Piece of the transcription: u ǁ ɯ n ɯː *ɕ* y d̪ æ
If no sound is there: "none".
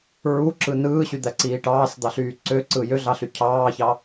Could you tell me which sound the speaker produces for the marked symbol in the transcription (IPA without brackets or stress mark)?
ɕ